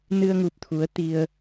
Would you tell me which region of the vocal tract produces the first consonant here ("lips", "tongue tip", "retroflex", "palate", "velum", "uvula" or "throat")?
tongue tip